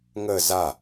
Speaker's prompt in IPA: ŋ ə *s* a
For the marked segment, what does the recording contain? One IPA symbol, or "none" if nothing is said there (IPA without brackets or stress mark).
z